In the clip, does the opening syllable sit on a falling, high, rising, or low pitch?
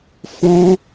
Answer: high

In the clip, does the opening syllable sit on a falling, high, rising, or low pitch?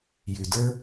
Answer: low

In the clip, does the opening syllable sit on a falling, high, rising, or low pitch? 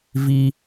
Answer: high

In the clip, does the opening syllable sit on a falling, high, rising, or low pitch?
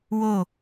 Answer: falling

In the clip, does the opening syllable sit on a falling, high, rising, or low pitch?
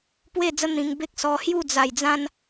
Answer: falling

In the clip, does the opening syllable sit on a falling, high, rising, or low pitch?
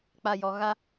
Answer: low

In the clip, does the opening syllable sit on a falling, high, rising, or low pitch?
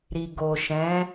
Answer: low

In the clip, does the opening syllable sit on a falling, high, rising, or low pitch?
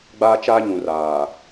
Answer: high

